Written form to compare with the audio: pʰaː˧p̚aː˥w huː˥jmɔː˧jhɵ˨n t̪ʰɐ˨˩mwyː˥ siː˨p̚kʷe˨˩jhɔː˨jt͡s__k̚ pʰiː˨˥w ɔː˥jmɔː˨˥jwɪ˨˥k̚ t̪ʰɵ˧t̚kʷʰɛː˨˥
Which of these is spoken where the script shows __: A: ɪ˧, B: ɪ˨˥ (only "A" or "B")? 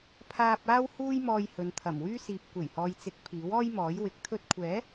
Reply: B